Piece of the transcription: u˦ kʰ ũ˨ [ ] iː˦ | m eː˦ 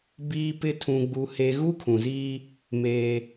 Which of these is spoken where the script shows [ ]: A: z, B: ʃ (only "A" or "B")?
A